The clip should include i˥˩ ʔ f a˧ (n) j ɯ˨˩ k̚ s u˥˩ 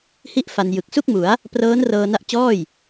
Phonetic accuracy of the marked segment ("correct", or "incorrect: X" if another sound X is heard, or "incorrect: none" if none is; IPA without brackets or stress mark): correct